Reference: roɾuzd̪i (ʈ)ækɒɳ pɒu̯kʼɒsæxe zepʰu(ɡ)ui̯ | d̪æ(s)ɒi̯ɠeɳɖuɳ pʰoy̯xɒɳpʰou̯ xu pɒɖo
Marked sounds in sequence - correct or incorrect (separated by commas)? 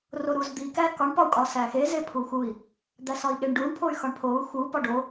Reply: incorrect, incorrect, correct